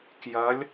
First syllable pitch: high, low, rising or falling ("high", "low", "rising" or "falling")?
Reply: rising